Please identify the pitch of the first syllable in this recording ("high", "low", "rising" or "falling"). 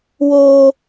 high